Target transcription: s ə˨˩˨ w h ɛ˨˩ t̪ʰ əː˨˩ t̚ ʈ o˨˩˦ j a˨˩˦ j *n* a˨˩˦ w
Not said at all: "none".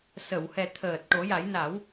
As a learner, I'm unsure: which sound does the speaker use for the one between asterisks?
n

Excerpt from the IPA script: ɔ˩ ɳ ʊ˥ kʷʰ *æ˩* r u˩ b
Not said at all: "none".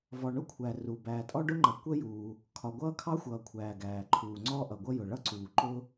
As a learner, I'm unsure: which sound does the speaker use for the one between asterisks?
æ˩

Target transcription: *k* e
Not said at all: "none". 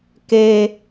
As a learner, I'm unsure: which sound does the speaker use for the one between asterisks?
k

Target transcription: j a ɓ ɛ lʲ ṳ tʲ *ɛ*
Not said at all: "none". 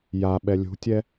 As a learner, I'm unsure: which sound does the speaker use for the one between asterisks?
ɛ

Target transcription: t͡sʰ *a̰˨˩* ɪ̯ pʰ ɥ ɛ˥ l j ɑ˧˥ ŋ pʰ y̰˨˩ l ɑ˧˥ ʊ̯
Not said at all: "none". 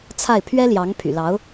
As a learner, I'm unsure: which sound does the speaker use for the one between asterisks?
a˥˩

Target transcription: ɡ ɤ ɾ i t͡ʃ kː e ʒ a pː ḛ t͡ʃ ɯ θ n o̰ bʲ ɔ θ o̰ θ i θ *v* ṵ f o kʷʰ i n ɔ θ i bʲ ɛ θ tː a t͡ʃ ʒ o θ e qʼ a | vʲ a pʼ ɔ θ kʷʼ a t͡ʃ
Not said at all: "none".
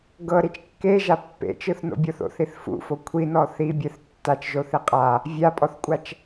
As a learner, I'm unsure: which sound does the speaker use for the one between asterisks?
f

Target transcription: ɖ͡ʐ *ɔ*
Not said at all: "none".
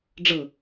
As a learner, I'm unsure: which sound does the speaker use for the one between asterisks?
ɤ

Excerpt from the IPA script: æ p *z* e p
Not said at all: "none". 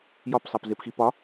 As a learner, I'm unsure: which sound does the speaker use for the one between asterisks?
z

